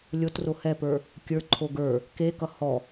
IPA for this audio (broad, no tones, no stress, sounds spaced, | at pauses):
lʲ o t r o h ɛ p ə˞ | kʲ ə˞ ǃʰ o ɡ ə˞ | k e k ʌ h ɔ